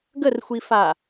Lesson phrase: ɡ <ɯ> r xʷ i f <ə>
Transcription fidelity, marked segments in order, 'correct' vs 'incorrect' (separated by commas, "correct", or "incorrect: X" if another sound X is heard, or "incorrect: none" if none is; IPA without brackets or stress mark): incorrect: ə, incorrect: a